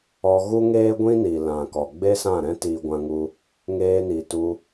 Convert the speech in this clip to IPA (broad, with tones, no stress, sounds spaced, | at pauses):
ɔ˧ ɣ u˦ ŋ eː˦ ɡʷ ĩ˦ n i˨ l ã˨ k ɔ˨ ɡ͡b e˦ s ã˦˨ ɾ ɛ̃˦ t iː˧ ɡʷ ã˧ ŋ u˧ | ŋ eː˧ n i˨ t u˧